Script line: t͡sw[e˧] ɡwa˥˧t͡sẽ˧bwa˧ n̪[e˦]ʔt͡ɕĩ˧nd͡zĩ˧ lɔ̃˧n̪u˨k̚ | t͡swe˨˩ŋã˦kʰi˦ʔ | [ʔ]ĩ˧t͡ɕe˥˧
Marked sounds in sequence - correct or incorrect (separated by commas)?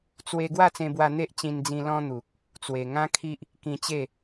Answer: correct, correct, incorrect